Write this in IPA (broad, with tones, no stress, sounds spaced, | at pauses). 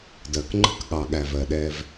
d ɜ˨ k ŋ͡ǃ ə̤˦ k ɠ ɑ˨ ɠ æ˨ v ɜ˨ ɗ ɛ˦ v